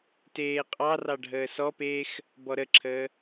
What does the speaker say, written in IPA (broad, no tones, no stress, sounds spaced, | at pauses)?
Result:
t eː qʼ ɑ r ɑ ɖʱ əː s ɔ p eː x | b ɔ ɾ ə ǁʰ əː